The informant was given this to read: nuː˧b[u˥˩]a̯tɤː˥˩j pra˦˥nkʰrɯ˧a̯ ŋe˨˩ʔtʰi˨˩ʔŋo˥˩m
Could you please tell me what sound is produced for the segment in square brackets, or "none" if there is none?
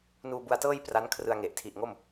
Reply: u˧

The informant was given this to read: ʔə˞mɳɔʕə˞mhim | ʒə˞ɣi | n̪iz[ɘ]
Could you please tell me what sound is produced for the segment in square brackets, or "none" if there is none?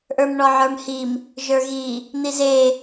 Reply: e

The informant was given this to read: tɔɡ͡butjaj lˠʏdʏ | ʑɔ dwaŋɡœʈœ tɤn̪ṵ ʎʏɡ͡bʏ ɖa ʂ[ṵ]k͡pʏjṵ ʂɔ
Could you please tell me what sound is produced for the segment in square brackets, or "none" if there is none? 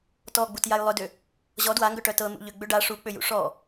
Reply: u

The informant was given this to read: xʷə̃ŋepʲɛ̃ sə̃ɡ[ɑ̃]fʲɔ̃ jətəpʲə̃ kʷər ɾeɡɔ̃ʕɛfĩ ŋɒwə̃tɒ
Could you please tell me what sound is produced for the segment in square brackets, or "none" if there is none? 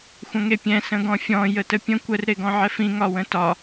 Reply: ɔ̃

